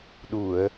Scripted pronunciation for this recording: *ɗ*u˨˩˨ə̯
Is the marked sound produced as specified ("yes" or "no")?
yes